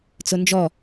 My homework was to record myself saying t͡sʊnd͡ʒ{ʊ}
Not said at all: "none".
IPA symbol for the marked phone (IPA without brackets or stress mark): ɔ